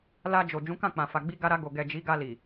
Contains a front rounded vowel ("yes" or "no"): no